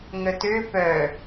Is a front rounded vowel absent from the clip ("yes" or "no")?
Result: no